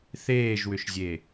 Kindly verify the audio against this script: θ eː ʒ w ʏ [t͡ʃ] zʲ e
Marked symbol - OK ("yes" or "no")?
no